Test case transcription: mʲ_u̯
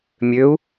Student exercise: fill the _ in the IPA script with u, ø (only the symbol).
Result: ø